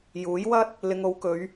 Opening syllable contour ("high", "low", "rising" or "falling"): rising